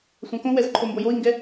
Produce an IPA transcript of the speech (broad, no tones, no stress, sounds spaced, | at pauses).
sʷ ã k õ w ɛ z ǃʰ o m b o j o i̯ ŋ ɡ ɛ